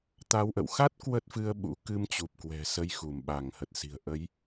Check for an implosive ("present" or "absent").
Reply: present